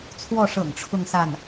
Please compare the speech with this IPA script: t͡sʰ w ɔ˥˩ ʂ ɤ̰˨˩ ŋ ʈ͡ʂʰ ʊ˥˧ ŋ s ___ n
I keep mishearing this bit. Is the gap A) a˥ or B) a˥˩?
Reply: B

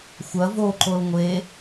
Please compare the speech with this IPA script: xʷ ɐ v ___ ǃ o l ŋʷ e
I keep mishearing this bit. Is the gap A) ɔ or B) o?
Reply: B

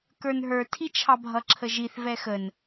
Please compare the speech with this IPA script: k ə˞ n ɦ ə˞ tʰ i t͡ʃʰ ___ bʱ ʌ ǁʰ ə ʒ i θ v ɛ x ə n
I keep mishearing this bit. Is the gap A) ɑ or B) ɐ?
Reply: A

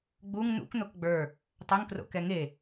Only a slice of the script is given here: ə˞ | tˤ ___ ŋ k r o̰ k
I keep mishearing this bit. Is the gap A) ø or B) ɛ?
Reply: A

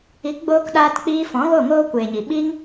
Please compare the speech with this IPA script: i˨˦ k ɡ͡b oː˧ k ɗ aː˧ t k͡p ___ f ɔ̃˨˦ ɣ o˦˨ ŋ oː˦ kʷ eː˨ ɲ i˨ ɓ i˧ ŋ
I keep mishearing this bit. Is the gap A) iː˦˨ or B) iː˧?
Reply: B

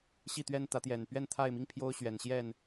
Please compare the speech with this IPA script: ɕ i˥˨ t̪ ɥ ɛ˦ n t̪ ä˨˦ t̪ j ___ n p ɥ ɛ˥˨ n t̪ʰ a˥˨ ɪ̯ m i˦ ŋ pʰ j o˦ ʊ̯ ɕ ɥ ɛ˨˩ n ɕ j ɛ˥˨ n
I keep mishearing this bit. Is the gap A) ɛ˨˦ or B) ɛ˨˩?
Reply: B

